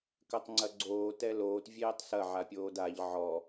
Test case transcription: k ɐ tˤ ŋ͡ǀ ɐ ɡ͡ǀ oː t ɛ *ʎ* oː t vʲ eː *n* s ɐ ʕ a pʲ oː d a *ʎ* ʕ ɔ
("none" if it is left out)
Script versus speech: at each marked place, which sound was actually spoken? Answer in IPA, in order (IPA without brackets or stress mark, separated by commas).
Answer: l, tˤ, ʎ